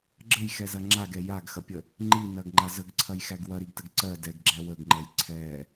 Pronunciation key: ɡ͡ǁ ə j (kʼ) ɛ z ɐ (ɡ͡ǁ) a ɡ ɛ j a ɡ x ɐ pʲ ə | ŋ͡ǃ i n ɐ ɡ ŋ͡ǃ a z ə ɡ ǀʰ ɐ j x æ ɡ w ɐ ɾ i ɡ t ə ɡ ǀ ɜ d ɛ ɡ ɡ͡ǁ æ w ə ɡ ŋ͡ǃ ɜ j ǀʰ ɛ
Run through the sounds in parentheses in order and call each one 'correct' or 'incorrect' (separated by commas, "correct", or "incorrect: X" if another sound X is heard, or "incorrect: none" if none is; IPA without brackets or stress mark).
incorrect: x, incorrect: ŋ͡ǁ